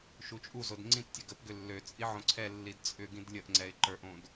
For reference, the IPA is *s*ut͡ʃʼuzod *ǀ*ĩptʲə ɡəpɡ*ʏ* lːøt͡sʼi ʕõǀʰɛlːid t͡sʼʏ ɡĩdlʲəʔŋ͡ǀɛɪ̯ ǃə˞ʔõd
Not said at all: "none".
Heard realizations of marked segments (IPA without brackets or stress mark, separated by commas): ʃ, ŋ͡ǀ, ʏ